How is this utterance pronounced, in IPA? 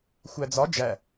xʷæd͡zɒ d͡ʒæ

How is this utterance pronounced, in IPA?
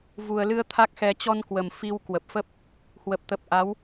vu˨˩ə̯lɨ˧ə̯ t̪ʰa˦˥k̚xɛ˧ t͡ɕɔ˧nkwə˨˩m fi˧w kwə˨˩p̚fə˦˥p̚ | hwə˨˩p̚t̪ə˨˩p̚ʔa˨˦w

